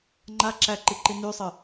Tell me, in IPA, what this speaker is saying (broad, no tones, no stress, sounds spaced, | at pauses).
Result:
ŋ͡ǃ a ǁ æ ǃ i ǃ i n y sˤ ə